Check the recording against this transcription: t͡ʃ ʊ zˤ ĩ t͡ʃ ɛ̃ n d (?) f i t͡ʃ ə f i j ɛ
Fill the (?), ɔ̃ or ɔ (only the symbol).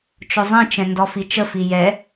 ɔ